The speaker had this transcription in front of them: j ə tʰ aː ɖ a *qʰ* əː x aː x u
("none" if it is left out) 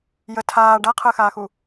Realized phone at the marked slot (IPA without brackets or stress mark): qʰ